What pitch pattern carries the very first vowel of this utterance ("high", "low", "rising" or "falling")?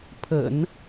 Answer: low